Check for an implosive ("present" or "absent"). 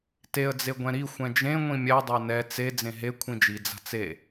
absent